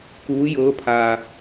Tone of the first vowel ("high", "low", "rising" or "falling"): rising